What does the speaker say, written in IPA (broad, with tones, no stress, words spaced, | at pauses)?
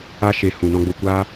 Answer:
a˧ ʃe˨ hũ˨ nɔ̃˧ɡ͡bo˧kʷaː˦